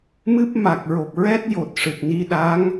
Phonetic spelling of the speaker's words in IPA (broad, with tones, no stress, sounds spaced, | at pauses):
m ɨ˦˥ p̚ m a˨˩ k̚ ɹ o˨˩ p̚ ɹ ɛ˦˥ t̚ j o˨˩ t̚ ʂ ɨ˨˩ t̚ n i˧ ɗ a˧˥ ŋ